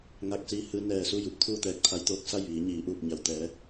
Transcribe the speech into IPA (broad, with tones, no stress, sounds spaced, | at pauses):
ŋ a˧ k̚ s iː˧ h ɯː˧ n ɛː˧˩ s u˥˨ j u˧ p̚ t̪ʰ uː˥˨ t̪ ɛː˧ k̚ t̪ʰ a˧˥ j t̪ oː˧ k̚ s a˥˨ j ʋ iː˩˧ ɲ iː˩˧ ʔ uː˧˩ p̚ ɲ a˩ w t̪ ɛː˩˧